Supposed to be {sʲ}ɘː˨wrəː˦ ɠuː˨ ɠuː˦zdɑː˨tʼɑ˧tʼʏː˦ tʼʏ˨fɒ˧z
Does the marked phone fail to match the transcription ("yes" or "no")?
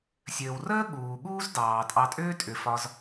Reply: no